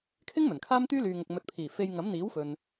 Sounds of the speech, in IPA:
kʰɪ˥ŋ mɵ˨˩nkʰaː˥mt̪yː˥ lyː˨ŋʊ˨k̚ mɵ˨t̚pʰiː˨˩ fe˧j ŋɐ˨˥mn̪iː˨˥wfɵ˨n

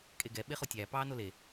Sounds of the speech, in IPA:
kʼeɡɛ ɓeχotʲæː pɑːnole

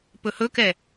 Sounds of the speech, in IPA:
pɵhɵkɛ

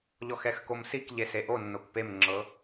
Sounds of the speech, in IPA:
ʎɔxɛxkomsik ʎeseʔonːok pemŋ͡ǁɤ

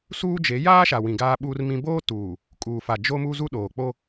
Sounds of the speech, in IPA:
suː˦d͡ʒe˨˦ jaː˦ʃa˨wĩ˨ ɡaː˦ɓuː˦rmĩ˦ boː˦tuː˨ | kʼuː˨fa˨ d͡ʒo˦mu˦ zu˦ɗoː˨k͡po˦

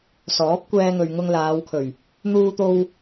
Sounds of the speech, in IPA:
sɔː˨˥p̚kʷɛː˧ŋɵ˨ɥ ŋʊ˧ŋlaː˨˧wkʰɵ˨˩ɥ | n̪uː˧t̪o˧w

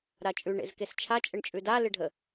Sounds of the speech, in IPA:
ɾat͡ʃʼʉ ɳḛzkest͡ʃʰa t͡ʃʼəɳt͡ʃʼʉda lɪɖʱə

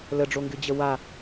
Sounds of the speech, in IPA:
ləɖ͡ʐoŋɡɨd͡ʑə wa

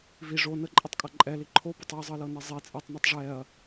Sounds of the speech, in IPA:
vi ʐo nəǃʼetˤkʼɐ ǃʼɛli ǃʰobɛtˤ iɐ̯zˤɤlɤne zˤi t͡sʼɛtˤnɛtˤ ʐɛɐ̯

